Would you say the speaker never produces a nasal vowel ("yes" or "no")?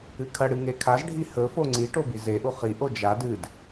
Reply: yes